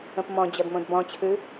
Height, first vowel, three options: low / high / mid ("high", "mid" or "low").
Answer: mid